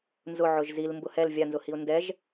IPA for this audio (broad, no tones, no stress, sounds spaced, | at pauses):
n z ʊ ʕ ʊ ʒ z i l m b ʊ h ɛ l vʲ a n z ʊ h i ʊ̯ n d ɛ ʒ